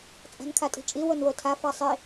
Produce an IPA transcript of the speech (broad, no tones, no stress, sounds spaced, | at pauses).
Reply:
t͡sʼ a̤ n kʰ a tʼ i̤ t͡ʃʼ i w o n w o tʰ a f a sˤ i